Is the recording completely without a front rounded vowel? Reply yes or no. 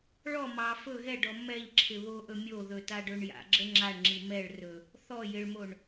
yes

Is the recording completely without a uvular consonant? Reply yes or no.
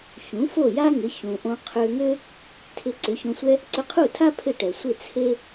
no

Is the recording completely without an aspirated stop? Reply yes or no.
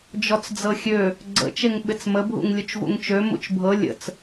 yes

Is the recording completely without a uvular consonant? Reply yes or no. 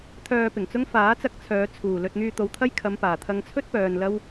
yes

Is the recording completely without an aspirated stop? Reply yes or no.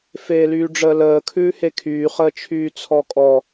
no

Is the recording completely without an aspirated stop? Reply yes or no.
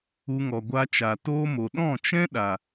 yes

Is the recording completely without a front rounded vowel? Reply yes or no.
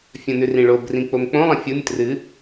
yes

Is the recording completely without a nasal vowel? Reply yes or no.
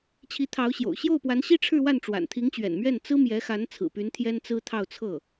yes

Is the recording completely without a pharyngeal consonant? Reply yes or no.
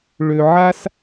no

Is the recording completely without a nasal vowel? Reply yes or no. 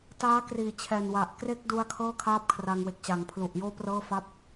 yes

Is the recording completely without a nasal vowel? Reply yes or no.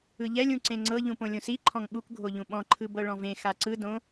no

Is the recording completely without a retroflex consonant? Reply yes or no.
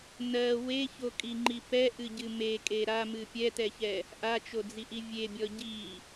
yes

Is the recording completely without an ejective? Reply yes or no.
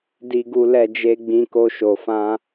yes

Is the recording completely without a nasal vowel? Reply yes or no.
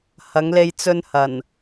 yes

